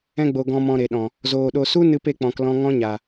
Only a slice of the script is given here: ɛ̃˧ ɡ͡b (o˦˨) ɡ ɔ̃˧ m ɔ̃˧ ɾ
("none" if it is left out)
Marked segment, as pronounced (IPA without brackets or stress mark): o˨